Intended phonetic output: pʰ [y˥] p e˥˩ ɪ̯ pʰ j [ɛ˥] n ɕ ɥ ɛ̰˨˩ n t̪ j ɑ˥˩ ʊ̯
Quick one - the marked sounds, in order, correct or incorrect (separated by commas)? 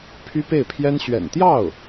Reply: correct, correct